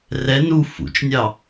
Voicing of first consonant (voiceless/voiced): voiced